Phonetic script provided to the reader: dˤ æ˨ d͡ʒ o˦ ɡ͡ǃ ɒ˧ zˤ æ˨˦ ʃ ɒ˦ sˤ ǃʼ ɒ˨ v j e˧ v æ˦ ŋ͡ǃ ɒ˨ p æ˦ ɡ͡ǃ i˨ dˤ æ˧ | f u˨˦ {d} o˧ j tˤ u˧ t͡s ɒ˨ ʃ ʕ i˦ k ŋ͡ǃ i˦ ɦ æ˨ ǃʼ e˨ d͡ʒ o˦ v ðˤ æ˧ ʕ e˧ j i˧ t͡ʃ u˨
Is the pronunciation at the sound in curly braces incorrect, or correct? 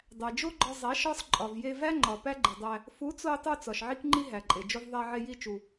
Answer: incorrect